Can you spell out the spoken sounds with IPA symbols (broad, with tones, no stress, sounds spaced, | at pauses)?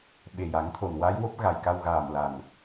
ɓ e˨˩ j a˨˩˦ ŋ t̪ʰ o˨˩ n w a˧˥ j w o˦˥ p̚ ɣ a˨˩ j k a˧ w ɣ aː˨˩ m l a˨˩ n